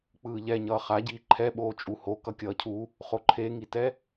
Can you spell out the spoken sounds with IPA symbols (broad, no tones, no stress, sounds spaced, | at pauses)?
k͡p ɯː ʎ ɛ ɲ ʌː χ a ɟ iː ǃʰ ɛ ɓ oː t͡ʃʼ u h o k ʌ kʲ ʌː cʰ u | χ o ǃʰ e ŋ i t ɛ